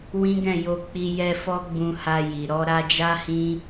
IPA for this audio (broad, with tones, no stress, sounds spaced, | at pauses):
w ĩ˦ ɡ ɛ̃˦˨ j o˧ k͡p i˧ j ɛ˧ f ɔ˦ ɡ͡b ũ˧ h a˧ j i˨ ɾ ɔ˧ ɾ a˧ d͡ʒ a˦ h ĩ˦